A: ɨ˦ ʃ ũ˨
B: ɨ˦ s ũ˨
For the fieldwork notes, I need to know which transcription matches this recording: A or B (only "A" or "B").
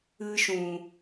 A